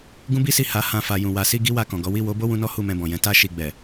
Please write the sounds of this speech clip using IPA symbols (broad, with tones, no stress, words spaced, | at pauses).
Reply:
ɡũ˦bi˦si˦˨ ha˨˦hã˧ fa˨ jũ˨ wa˨si˧ ɡi˦wa˧kɔ̃˨ɡɔ˨˦ wi˦˨wo˨˦ bo˦wũ˧nɔ˦ hu˦˨mɛ̃˧bɔ̃˨jɛ̃˨˦ ta˦ ʃi˦˨ ɡ͡bɛ˨